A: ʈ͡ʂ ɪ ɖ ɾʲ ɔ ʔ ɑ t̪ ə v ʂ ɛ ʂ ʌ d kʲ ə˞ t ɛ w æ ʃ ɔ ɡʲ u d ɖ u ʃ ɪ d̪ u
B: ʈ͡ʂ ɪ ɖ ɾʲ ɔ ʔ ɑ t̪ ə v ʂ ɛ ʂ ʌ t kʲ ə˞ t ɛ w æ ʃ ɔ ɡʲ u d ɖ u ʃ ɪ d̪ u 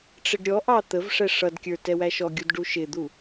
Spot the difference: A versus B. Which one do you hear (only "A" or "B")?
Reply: A